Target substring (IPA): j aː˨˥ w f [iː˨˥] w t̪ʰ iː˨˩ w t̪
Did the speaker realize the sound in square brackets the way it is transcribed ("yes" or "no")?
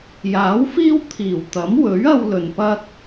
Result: no